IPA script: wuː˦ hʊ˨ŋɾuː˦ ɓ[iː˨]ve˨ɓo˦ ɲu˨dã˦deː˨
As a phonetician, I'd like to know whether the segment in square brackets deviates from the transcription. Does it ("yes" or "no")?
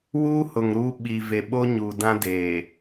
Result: yes